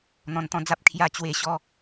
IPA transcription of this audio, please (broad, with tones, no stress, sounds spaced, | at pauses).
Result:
n̪ ɔ̃˧ n t̪ ɔ̃˦ d͡z a˦ p̚ kʰ j a˧ t͡ɕ w e˧ ɕ ɔ˧